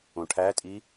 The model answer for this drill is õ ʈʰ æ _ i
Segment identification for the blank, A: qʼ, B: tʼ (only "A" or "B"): B